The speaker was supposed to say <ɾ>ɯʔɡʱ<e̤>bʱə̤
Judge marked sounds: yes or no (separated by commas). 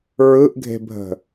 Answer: no, yes